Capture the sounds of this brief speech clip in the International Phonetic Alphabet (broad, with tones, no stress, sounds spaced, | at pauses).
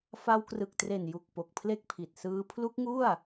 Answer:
f a˧ w k r ɯ˨˩ k̚ t r e˨˩ n j u˨˩ k̚ p o˨˩ k̚ pʰ l e˥˩ k̚ pʰ i˨˩ t̚ s ɯː˦˥ pʰ l u˦˥ k̚ ŋ u˥˩ a̯